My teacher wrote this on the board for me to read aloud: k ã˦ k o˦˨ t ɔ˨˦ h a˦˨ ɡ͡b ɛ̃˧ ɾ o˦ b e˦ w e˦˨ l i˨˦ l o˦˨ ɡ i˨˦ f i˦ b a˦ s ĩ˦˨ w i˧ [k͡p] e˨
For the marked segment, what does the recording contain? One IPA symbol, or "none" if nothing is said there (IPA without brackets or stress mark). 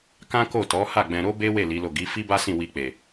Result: k͡p